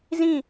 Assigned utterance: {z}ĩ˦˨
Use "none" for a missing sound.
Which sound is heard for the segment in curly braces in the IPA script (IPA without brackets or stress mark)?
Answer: z